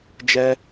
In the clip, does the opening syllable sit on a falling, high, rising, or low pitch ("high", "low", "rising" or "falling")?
high